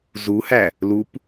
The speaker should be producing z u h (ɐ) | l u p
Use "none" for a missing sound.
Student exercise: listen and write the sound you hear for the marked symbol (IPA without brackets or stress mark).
æ